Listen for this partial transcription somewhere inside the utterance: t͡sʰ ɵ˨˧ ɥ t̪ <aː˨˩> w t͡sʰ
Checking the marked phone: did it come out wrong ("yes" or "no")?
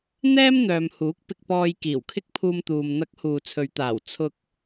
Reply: no